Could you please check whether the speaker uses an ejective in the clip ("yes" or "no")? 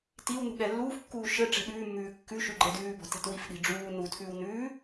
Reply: no